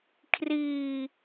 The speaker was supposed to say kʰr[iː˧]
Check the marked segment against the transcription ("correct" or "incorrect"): correct